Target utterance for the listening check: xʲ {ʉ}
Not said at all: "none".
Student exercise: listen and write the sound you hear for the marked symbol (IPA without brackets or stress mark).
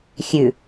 ʉ